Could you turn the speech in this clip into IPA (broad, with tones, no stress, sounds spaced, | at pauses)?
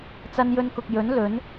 t͡s ɐ˧ n j ɵ˧ n k ʊ˨ k̚ j ɵ˨˥ n l ɵ˨˥ n